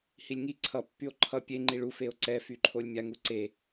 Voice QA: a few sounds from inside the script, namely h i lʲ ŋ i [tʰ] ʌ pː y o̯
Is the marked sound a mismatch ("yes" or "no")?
yes